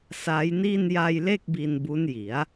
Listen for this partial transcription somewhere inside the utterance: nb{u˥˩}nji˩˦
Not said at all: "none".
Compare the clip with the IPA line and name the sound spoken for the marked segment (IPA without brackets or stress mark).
u˦˥